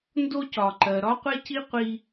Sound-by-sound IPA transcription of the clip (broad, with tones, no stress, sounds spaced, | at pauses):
n d o˥ c ɒ˩ ǃ ɜ˩ ɾ ɒ˥ qʷ e˥ c i˥ qʷ i˥